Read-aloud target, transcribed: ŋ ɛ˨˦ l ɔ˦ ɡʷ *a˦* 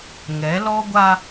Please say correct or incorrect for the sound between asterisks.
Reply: correct